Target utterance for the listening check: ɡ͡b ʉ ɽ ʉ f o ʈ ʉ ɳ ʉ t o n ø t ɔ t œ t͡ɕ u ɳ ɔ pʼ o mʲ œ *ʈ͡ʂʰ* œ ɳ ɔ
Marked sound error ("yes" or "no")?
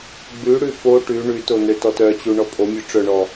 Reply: yes